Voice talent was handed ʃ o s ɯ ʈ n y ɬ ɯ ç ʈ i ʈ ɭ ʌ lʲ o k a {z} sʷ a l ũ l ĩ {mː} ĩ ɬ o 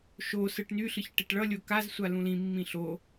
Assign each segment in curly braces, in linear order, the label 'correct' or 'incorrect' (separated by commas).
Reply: correct, correct